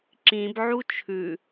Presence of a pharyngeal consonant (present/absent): present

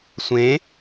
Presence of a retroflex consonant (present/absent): absent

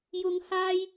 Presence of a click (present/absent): absent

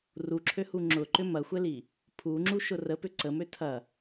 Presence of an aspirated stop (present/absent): present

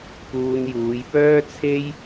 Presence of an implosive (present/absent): absent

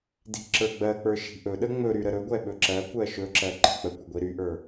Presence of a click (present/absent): present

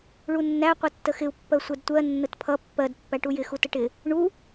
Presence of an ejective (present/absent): absent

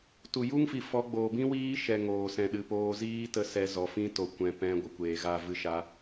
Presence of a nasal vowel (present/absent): present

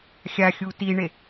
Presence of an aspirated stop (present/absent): absent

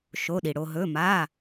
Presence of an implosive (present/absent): present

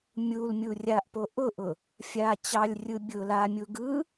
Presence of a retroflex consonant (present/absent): absent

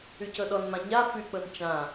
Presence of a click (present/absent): absent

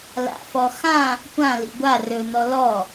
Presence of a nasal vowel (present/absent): present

